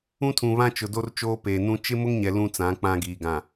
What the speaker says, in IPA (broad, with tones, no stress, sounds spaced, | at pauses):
ũ˦ tʰ ũ˨ β ã˦ t͡ʃ ʊ˨ d o˦ r t͡ʃ oː˦ p eː˨ n ũ˦ t͡ʃ ɪ˦ m ʊ˦ ŋ ɲ ɛ˨ l ũ˦ t͡s ã˨˦ k͡p ã˦ ɡ iː˨ ɡ ã˨